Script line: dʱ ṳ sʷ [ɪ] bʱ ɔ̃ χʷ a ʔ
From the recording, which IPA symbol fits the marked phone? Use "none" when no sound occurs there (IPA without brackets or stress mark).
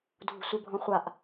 ɪ